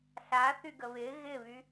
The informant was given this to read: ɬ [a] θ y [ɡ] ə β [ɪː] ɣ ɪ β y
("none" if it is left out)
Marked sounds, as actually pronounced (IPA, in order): a, ɡ, ɪː

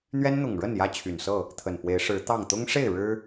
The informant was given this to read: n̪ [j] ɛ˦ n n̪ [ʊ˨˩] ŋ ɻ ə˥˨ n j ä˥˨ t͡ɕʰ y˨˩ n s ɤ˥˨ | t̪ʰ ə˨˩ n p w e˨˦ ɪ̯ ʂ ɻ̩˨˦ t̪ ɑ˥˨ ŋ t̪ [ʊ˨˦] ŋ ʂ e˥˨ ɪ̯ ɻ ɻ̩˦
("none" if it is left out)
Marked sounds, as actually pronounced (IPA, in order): ɥ, ʊ˨˩, ʊ˦

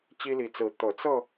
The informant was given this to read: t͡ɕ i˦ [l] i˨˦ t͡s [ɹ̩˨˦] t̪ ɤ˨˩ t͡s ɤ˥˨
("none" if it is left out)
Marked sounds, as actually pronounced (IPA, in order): l, ɹ̩˨˦

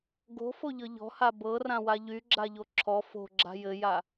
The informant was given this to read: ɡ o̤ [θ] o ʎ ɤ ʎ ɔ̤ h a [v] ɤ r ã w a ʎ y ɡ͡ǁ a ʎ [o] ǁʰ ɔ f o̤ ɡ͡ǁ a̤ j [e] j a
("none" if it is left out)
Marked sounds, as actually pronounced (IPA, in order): f, b, o, ɘ

